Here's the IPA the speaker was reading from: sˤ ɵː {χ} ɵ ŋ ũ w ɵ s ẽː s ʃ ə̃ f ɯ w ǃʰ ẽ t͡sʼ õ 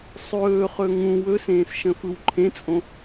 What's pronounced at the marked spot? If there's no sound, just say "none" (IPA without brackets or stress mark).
χ